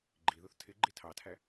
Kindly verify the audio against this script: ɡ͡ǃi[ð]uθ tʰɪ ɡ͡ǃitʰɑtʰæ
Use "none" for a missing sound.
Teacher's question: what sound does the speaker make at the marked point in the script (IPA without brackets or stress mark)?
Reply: ð